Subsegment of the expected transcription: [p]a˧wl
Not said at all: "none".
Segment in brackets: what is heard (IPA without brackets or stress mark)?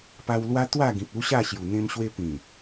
p